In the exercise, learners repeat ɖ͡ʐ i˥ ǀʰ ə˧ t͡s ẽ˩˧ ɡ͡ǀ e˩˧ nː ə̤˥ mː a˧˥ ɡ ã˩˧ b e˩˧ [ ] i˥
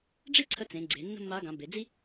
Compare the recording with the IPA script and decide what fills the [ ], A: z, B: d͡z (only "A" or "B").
B